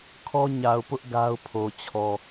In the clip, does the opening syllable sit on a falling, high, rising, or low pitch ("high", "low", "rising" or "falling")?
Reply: high